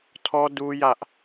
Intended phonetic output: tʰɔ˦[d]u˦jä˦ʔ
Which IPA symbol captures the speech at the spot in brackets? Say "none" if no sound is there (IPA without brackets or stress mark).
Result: d